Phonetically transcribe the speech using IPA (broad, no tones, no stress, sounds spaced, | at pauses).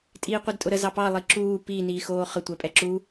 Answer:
tʼ iː qʷ e d tʼ ʊ ɾ ə z ɑ p ɑ lˠ i ǁ uː p i n iː x oː χ ə tʷ ɛ pʼ ɛ ǁ u